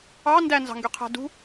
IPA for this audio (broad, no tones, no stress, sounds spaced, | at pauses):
ɑ n d æ n z ɑ̤ ŋ ɡ y qʰ æ̤ d ṳ